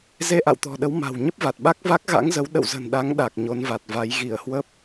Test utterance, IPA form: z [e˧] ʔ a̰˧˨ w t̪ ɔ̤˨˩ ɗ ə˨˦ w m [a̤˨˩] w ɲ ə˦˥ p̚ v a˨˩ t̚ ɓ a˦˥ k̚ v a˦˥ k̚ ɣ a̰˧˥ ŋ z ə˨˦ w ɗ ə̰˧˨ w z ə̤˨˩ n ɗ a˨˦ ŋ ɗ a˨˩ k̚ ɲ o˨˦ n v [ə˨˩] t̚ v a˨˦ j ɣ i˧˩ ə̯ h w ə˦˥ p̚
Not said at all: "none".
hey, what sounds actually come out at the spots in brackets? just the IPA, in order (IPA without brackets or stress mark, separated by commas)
e˧, a̤˨˩, a˨˩